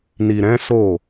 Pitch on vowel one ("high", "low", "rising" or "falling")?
low